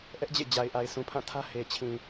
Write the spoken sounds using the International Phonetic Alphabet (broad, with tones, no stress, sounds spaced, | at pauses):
ʔ ɛ˦ ʔ d͡ʑ ḛ˦˨ d͡ʑ a˨ ɪ̯ ʔ a˨ ɪ̯ s ũ˨ pʰ ã˦˨ tʰ ä˦ h e˨ t͡ɕʰ ĩ˨